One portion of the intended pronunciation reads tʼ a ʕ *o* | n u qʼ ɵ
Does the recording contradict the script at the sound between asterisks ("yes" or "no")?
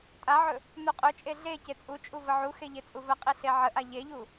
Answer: yes